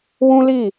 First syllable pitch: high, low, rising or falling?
high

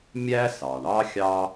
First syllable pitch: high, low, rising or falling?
high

